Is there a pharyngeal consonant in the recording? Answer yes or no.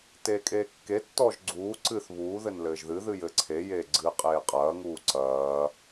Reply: no